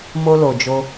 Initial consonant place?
labial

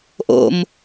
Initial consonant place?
glottal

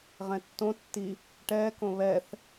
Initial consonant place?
uvular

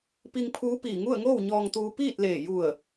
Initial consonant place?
labial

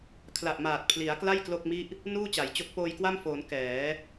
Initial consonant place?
velar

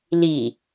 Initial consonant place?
alveolar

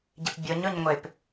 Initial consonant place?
palatal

